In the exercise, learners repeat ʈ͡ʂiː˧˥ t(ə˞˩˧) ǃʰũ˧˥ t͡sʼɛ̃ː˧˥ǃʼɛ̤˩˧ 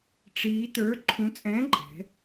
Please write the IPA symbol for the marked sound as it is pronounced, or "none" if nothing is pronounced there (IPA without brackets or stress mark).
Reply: ə˞˧˥